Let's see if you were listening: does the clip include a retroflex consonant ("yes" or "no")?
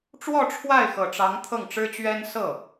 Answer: yes